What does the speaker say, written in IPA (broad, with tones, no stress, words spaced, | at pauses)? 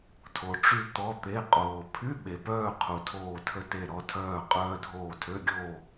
tʰo˩ʈ͡ʂy˧ t̪ɔ˩˧˩ t̪e˩˧˩ qʼoː˩ pʰy˧˥˧ ɓe˩pœː˥˨ qʰu˩tʰoː˧˩tʰə˧te˧˩ ɾɔ˧tʰœː˧˩ qʼœː˧dʱoː˧˩tʰø˧˥˧ɡʲoː˥˨